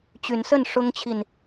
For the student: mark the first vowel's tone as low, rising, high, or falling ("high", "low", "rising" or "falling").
rising